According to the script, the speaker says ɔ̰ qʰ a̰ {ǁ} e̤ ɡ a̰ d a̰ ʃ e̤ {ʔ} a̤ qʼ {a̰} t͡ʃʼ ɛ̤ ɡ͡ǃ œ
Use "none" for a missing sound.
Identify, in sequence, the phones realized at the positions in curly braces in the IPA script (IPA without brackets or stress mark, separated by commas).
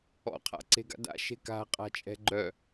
ǀ, k, a̤